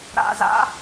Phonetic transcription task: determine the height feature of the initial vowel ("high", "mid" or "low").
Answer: low